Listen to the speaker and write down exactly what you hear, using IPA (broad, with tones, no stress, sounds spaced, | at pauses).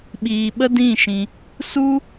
ɓ iː˧ ɓ ə˦ d ĩ˦˨ ʃ ĩ˧ | s u˦